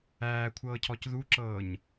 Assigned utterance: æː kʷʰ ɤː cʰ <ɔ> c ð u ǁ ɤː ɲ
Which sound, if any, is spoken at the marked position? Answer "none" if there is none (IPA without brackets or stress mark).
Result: ɔ